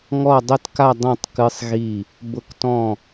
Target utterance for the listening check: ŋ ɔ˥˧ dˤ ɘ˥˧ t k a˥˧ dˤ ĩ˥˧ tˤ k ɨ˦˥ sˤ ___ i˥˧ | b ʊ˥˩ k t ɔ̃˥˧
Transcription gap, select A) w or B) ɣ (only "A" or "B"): B